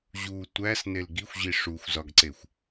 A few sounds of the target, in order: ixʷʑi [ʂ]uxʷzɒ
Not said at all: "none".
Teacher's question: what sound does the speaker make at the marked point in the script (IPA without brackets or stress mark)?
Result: ʂ